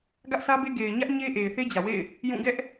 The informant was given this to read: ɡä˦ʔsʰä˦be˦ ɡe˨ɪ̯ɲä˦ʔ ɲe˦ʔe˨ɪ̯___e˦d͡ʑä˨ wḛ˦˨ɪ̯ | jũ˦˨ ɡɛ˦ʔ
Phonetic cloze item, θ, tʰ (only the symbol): θ